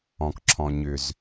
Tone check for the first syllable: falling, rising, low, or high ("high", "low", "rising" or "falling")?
low